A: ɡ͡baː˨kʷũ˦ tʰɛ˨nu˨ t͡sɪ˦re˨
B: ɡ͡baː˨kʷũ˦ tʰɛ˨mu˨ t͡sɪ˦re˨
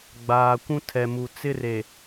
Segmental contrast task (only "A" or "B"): B